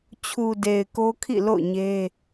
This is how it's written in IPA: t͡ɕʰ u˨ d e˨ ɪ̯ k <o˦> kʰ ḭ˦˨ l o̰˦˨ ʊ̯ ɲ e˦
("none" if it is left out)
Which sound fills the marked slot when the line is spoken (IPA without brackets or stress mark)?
o˦